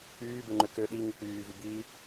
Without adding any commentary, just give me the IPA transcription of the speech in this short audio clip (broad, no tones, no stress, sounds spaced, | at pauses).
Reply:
k͡p yː b e ŋ͡ǃ ø k ø ɗ i ŋ ɯ k͡p yː v y b iː